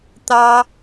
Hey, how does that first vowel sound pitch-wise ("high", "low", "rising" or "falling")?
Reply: high